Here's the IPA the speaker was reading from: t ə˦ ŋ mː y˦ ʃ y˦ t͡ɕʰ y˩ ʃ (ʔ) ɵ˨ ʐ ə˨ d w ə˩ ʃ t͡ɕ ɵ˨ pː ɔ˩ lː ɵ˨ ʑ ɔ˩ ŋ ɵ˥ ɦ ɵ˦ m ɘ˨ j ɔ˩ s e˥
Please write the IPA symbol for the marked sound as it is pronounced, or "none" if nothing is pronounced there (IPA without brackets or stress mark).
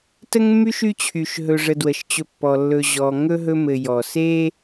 ɦ